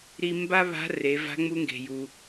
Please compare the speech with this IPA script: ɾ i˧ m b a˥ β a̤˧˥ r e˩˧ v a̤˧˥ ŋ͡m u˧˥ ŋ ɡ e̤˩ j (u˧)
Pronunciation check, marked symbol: incorrect: u˩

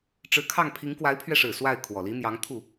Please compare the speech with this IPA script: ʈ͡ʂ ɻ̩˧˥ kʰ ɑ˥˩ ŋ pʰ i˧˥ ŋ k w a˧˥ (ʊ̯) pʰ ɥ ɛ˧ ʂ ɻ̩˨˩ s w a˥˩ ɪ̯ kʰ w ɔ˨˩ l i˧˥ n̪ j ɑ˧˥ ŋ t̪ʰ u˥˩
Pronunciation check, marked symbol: incorrect: ɪ̯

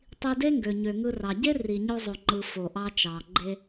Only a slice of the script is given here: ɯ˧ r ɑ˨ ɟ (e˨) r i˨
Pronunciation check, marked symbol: incorrect: e˦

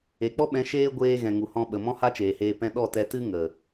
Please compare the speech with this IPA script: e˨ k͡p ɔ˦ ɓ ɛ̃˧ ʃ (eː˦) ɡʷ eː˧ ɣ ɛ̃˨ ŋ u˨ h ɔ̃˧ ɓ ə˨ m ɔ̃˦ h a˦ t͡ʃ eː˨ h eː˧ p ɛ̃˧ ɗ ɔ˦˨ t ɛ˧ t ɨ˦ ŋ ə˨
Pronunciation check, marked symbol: correct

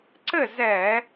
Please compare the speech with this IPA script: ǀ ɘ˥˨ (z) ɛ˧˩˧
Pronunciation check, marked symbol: correct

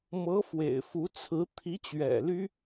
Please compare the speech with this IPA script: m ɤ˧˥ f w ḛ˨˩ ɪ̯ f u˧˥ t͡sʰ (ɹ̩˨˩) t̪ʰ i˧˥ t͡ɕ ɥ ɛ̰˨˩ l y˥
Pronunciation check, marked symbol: incorrect: ɹ̩˧˥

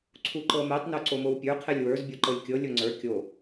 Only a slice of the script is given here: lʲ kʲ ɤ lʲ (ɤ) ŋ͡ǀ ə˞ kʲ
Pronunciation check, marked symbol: incorrect: o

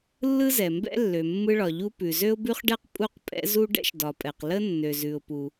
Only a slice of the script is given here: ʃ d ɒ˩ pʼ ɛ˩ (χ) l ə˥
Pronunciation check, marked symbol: incorrect: q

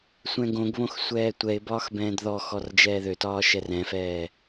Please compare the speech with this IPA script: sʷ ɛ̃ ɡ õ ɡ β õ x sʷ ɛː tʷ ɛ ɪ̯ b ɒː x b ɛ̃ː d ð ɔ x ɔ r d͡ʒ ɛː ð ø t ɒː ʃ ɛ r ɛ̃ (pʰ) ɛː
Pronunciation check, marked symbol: incorrect: f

